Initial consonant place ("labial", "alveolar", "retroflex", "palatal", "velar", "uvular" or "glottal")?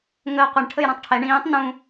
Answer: velar